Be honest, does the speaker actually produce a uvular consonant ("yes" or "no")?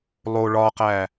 yes